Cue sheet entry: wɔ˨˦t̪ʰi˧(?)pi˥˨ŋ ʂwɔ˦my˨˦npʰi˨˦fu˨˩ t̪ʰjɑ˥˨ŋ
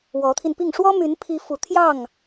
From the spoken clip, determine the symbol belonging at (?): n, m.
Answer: n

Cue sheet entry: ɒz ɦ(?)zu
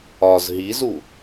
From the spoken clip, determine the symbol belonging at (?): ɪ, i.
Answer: i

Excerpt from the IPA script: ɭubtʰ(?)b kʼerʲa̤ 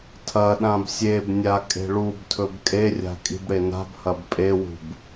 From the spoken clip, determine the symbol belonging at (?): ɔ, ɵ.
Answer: ɵ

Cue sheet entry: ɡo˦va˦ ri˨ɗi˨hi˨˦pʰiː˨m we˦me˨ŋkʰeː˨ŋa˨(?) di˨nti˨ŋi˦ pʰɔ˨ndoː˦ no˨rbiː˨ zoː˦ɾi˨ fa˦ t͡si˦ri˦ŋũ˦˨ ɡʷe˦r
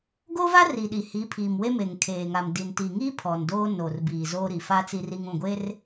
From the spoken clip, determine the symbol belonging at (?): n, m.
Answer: m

